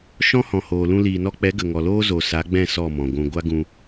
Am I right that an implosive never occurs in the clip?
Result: yes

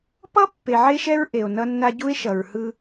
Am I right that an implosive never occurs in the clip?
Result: yes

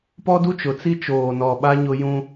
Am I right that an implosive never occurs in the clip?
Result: no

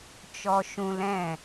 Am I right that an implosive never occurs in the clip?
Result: yes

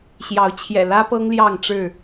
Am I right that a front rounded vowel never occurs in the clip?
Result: yes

